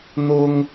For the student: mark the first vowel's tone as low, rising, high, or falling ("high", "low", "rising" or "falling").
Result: high